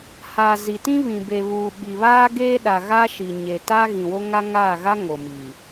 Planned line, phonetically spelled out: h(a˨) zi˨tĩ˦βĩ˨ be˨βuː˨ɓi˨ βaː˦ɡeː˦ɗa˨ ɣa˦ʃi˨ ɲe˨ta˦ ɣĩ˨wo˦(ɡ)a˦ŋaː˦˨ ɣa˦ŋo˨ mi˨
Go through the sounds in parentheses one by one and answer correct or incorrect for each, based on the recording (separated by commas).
correct, incorrect